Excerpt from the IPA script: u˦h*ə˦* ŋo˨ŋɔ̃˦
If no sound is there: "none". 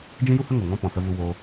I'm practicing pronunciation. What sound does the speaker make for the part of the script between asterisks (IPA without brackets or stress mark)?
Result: ə˦